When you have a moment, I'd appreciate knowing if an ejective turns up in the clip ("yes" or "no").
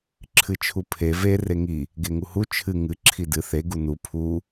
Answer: no